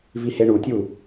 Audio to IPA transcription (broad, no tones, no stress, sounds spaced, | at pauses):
v i h e ɳ u tʲ u